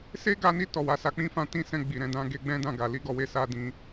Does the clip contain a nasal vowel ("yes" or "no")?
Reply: yes